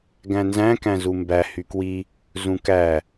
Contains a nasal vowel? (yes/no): yes